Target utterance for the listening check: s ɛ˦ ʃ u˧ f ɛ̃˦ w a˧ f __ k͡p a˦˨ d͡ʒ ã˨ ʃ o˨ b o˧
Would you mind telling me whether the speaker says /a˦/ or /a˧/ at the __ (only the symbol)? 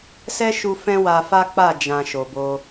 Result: a˦